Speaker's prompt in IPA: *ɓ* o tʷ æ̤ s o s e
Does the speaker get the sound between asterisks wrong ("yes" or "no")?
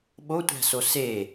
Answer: no